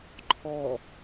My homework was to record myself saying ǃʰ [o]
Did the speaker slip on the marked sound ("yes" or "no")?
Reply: yes